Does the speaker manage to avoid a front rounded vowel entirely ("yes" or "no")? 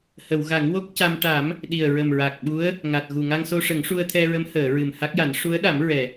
yes